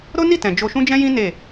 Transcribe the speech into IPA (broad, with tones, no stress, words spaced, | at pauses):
ɾo˦ni˦˨tɛ̃˨ d͡ʒo˧ʃũ˦d͡ʒɛ̃˦jĩ˦ ne˦˨